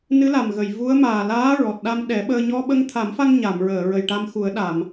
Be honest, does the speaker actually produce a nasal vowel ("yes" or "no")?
no